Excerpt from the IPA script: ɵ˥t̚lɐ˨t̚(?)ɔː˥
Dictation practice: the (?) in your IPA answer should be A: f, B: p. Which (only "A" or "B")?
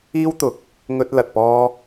B